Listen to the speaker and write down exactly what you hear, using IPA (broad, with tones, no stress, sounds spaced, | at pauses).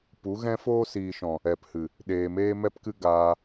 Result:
p u˨˦ ɣ ɛ̃˦ f oː˦ s iː˨ ʃ ɔ̃˨ | ɛ˨ p h ɨ˨ | ɗ eː˨ m eː˧ m ɛ˦ p k ɨ˦ ɡ aː˧